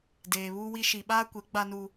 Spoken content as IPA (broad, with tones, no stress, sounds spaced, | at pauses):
d eː˨ β uː˦ w i˦ ʃ i˨ ɓ aː˦ kʷ e˨˦ ɡ͡b a˦ n u˦